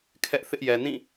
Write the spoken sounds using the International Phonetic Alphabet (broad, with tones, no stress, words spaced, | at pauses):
kʰɛ˦ʔθɪ˦ʔjɛ˨ nĩ˦˨